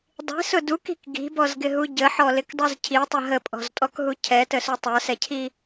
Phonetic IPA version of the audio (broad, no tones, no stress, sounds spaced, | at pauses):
dˤ i̤ s ʊ d u k i̤ k ɡ i̤ b ɔ z ɡ ɪ ɦ u ɟ ə ħ ɔ l ɪ k dˤ u z cʰ i tˤ ə ɦ ə pʼ ɔ̤ z tʼ ɔ k ɦ u cʰ ɛ t ə s u tˤ ə˞ s ɛ cʰ i